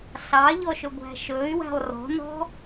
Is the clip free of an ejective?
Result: yes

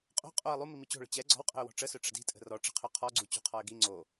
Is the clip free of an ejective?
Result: no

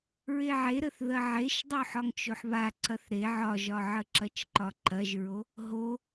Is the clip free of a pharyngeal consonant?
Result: no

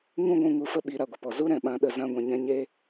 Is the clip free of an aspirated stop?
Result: yes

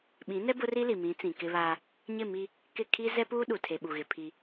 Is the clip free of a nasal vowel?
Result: no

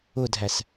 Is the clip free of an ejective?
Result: yes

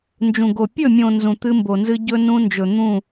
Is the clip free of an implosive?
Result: yes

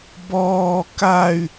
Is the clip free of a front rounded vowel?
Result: no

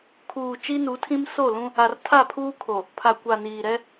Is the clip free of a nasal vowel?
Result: no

